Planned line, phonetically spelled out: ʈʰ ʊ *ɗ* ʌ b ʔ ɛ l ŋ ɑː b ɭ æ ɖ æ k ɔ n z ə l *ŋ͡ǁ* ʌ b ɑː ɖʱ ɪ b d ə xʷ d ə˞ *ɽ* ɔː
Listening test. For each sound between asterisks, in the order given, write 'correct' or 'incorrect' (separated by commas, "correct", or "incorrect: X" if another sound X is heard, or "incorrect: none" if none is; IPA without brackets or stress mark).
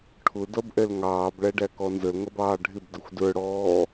incorrect: d, incorrect: ŋ, correct